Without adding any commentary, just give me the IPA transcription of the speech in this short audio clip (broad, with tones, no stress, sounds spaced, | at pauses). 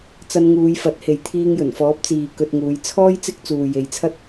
t͡s ɐ˧ n ŋ uː˨˧ j f ɐ˨˥ t̚ h e˨ j t̪ʰ iː˧ ŋ j ɵ˨˩ n f ɔː˨˥ p̚ t͡s iː˨ k ɵ˧ t̚ ŋ uː˨˧ j t͡sʰ ɔː˥ j t͡s ɪ˥ k̚ t͡s uː˨ j e˨˧ j t͡sʰ ɐ˥ t̚